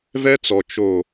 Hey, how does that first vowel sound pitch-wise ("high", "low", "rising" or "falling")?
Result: high